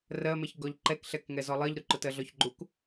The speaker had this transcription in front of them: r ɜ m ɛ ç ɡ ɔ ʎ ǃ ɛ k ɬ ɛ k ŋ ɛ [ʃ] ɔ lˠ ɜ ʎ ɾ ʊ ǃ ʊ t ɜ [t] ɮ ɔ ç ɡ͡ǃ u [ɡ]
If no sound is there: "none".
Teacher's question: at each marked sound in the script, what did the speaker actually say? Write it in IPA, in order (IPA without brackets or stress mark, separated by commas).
z, none, k